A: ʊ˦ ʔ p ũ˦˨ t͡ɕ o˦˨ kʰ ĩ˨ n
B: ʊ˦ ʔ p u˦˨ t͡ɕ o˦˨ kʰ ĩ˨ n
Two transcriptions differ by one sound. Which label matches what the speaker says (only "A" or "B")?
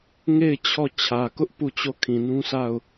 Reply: B